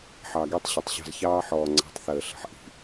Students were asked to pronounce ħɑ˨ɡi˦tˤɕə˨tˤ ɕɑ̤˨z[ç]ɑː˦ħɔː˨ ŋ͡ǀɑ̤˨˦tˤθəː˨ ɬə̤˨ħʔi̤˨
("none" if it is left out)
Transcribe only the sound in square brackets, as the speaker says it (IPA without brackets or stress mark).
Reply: ç